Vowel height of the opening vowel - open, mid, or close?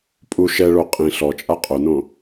close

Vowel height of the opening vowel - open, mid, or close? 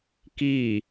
close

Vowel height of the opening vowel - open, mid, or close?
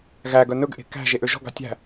open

